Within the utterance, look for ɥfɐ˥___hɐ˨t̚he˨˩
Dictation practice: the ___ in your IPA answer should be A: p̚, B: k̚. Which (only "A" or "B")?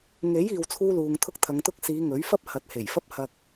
A